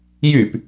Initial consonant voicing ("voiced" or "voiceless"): voiced